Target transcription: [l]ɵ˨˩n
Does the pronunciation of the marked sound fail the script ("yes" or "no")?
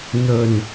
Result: yes